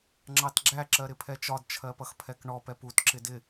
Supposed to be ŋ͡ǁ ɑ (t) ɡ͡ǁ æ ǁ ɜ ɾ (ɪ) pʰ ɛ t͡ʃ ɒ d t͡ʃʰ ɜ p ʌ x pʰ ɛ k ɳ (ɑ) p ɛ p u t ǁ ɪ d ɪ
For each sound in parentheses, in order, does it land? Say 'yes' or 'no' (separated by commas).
yes, yes, no